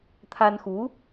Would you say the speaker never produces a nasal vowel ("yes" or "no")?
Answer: yes